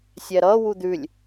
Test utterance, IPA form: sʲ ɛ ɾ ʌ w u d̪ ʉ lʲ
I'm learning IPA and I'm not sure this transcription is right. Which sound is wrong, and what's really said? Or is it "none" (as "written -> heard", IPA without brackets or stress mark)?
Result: none